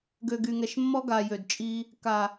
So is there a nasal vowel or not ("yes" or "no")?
no